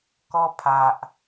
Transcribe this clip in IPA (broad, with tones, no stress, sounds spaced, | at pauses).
k ɔ˦ pʰ a˨ ʔ